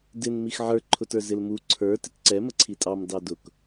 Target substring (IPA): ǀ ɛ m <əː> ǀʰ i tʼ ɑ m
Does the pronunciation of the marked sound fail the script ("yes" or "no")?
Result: yes